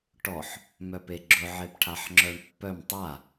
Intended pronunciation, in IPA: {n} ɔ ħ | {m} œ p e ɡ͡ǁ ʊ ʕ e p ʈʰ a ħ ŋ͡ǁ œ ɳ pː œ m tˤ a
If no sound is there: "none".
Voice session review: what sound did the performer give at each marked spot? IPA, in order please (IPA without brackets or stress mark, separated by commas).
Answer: ʈ, m